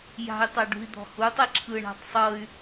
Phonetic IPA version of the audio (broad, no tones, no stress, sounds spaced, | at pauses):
j a̤ y̯ tˤ a ɖ ṳ i̯ d̪ ɔ̤ h u tˤ i ǁʰ ɯ ɳ a̤ tˤ sˤ ɤ y̯